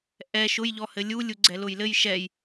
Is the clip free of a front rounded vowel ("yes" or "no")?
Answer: yes